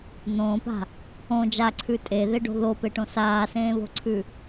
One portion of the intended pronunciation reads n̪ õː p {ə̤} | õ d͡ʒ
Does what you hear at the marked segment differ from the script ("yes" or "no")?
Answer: yes